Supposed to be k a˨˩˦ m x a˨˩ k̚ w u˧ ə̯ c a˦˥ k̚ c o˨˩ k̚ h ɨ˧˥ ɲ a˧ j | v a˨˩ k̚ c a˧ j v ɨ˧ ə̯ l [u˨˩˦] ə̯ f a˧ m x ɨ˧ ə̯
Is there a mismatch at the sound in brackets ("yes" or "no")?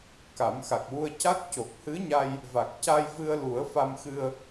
no